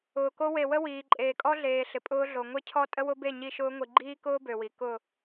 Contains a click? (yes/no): yes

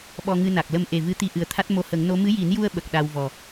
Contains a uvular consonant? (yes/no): no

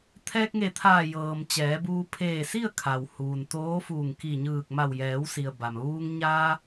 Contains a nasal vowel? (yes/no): no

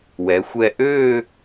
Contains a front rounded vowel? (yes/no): yes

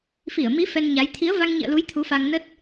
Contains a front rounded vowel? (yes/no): no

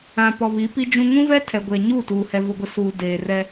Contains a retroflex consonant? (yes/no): no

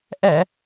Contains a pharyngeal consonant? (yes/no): no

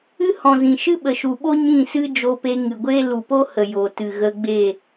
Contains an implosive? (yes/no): yes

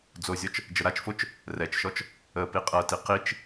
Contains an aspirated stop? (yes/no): no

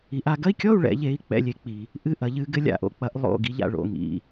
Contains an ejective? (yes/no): no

